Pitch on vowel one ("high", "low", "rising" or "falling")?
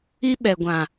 high